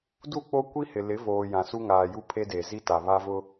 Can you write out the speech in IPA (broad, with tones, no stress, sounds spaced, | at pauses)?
d u˦˨ k͡p o˦ kʷ i˦ h ɪ˨ l ɪ˨˦ v oː˨ j ã˨ s u˦ ŋ aː˨ j u˦ pʰ e˦ d e˨ z i˦ t a˨ β a˦ v ʊ˦